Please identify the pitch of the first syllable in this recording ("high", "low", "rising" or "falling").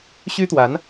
high